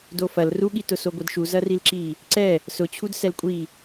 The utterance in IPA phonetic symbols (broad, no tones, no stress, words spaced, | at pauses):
dofɐl ruɠitʊso ɡʷɛdʃu zɐrilǁi | ǀɛ | sʊt͡ɕʰud sɛlkʷʼi